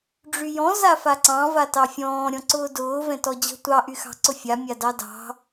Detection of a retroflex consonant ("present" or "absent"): present